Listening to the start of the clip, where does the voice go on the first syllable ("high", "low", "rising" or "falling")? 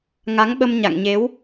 rising